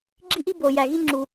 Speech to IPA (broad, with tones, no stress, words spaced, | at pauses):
ɡ͡ǁi˥ʔi˥ bo˩ jæ˩ɣi˥ŋ͡ǁu˩